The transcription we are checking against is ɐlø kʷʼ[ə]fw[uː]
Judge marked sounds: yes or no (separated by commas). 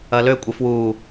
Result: yes, yes